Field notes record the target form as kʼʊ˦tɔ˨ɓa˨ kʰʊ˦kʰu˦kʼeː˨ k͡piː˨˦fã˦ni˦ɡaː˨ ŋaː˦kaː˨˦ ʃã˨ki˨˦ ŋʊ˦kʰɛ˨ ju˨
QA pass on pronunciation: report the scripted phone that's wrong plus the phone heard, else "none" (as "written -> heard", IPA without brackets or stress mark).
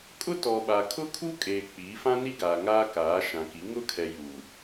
none